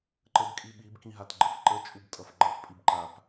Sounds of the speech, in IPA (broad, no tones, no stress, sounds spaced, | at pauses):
ǃ ə b kʼ i ɓ i b k ĩ ɦ a t ɡ͡ǃ ə f ǃ ə t͡ʃʼ u b tʼ ʌ f ɡ͡ǃ ʌ f pʼ i b ǃ a p